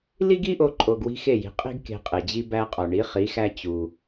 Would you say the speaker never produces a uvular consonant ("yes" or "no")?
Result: no